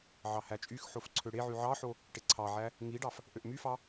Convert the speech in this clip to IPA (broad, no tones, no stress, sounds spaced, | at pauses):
ʕ ɑ h æ t͡ʃʼ y x ħ o f ǀʰ ø ɽ e ʕ y ʕ ɑ ħ o | ʈ e ǀʰ ɑ ʕ æ | ŋ i ɖ ɑ f | ʔ ø ʔ m y f ɑ